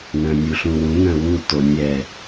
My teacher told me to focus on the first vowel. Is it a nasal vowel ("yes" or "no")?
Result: yes